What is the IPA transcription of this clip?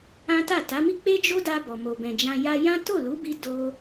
ã˦ t a˦˨ t a˨˦ m i˦ k͡p e˦ d͡ʒ o˦ d a˧ b ɔ˨ m o˨ b ɛ̃˨ d͡ʒ ã˧ j a˧ j ã˦ t o˦˨ l u˨˦ b i˧ d o˧

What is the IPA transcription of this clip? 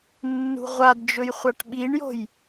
nː ṳ ʁʷ a d d͡ʒ ɵ j χʷ a ʈ ɓ i ɳ j o̤ j

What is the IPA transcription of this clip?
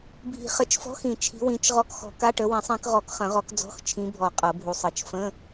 bʱ i̤˨˩˦ χ ə˨˩˦ t͡ʃ f ɔ̤˧˥˧ x ĩ˨˩˦ t͡ʃʰ i̤˨˦ w ĩ˨˦ t͡ʃ ʁ ɔ˧˥˧ k x ɔ̤˨˦ k a˧˥˧ ʈ ə˨˦ w ĩ˨˩˦ sˤ ĩ˨˦ k ʁ ɔ˨˩˦ k χ ə̃˨˩˦ ʁ ɔ˨˦ k d͡z ɔ̤˧˥˧ x t͡ʃʰ ĩ˨˦ bʱ ɔ˨˩˦ qʼ ɤ˨˩˦ bʱ u˨˦ sˤ ɤ˨˩˦ t͡ʃ f ə̃˧˥˧

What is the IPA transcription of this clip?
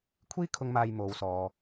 kʷʰ iː˥ kʰ ʊ˧ ŋ m aː˧ j m o˨ w s ɔː˨

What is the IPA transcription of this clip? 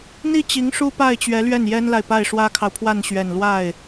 n̪ i˥˩ t͡ɕ i˧˥ ŋ ʂ u˥ p a˥˩ ɪ̯ t͡ɕ ɥ ɛ˧˥ l ɥ ɛ˥˩ n j ɛ˥ n l a˨ ɪ̯ p a˥˩ ɪ̯ ʂ w ä˥ kʰ ɑ˨ ʊ̯ pʰ w a˥˩ n ɕ ɥ ɛ˨˩ n l w a˥˩ ɪ̯

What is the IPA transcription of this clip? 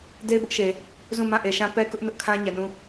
d e˦ ɪ̯ b ʊ˦ ʔ ʃ e˨ | z ũ˦˨ m ã˦˨ ʔ e˨ ʃ ã˦ p ɛ˦ k ʊ˦ ʔ n ʊ˦ ʔ kʰ ã˦ ɲ ɛ˨ n ũ˦˨

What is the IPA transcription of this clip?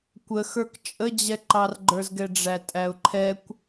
kʷ ə x ə˞ k t͡ʃʼ ə d͡ʑ ɛ ǃ ɑ r ɡ͡ǃ ə˞ z ɡ ɛ ɖ͡ʐ æ tʼ æ ʊ̯ ǃʰ ɛ kʷ

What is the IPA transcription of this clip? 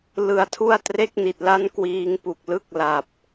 l ɯ˨˩ a̯ tʰ u˥˩ a̯ t r e˥˩ k̚ n i˨˩ t̚ l a˥˩ n k w iː˧ ŋ p u˨˩ k̚ l ɯ˦˥ k̚ l a˨˩ p̚

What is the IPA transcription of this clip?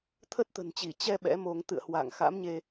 t̪ʰ ə˦˥ t̚ t̪ ə̤˨˩ n t͡ɕ i˧˩ t͡ɕ ɛ˧ ɓ ɛ̰˧˥ m o˧ ŋ t̪ ɨ̰˧˨ ə̯ h w a̰ː˧˨ ŋ x a̰˧˥ m ɲ e˧

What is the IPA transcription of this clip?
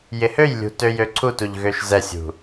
j ɪ h ø j lʲ ṳ t ø j ø ǀʰ u t u ʎ ɣ ø ʃ z ɛ sʲ ṳ

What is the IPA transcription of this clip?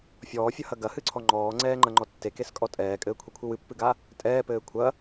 fʲ ɔː fʲ ɐ h ɐ ɡ ɐ h ɨ ǀʰ ɔ ŋ͡ǃ ɔː ŋ͡ǀ ɛː ŋ͡ǃ ɐ ŋ͡ǃ ɔ tː e k e s kʼ ɔ tʼ ɛː kʼ ɘː kʷʰ ɛ kʷʰ ɨ w ɨ pː ɨ ɡ a | tʼ ɛː p ɘː kʷʰ ɐ

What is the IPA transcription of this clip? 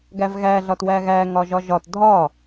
ɡ æ v ɣ æ ɮ ɒ t w æ ɣ æ ŋ ɒ ʒ ɒ ʒ ɒ t dʱ ɒ

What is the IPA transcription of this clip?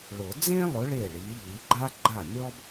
ɭ ʊ˨˩˦ d͡z ẽ˥ lˠ ʊ˨˥ ɭ e˥˩ ɭ i˨˥ ʎ i˨˥ ɡ͡ǃ a˥ ɡ͡ǃ a˥˩ mʲ ɔ˥ b

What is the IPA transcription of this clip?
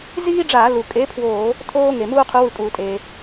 z iː˥ ɖ͡ʐ aː˧˩˧ l u˩ kʼ e˨˥ pʰ w oː˧˩˧ | tʰ oː˥ ŋ e˩ m uː˥ qʰ u˨˥ w ɯ˧˩˧ kʼ uː˩ tʼ eː˩

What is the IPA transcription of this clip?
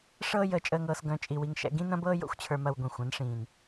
ʂ ɤː˦ j əː˧ t͡ʃʼ əː˧ ŋ ɤː˧ s ɡ œ̃˧ t͡ʃʼ i˧ w i˧ ŋ ʃ ɛ̰˧ ɡ ĩ˦ n ɐ̃˦ b ɤː˦ j o̰˦ xʷ t͡ɕʰ ə˞˧ m ɐ˧ w ɡʷ ĩ˨ xʷ ɐ̃˨˦ n ʂ ĩː˨ n

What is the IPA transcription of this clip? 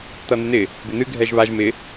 t̪ ʌ n̪ ɪ n̪ ɪ | b ɪ n̪ ɨ ɡʱ ɛ ʒ β a ʒ m ɪ

